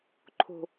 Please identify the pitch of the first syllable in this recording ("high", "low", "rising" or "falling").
high